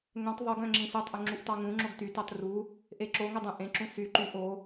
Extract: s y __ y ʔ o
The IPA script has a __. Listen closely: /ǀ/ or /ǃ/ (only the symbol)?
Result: ǃ